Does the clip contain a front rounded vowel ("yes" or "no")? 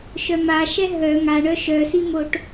yes